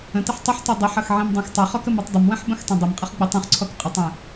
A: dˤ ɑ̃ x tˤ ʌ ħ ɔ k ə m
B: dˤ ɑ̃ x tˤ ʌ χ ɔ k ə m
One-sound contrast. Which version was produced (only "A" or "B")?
B